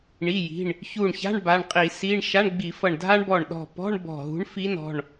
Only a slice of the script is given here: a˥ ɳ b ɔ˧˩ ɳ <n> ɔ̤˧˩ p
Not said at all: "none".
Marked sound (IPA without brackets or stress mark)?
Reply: ɗ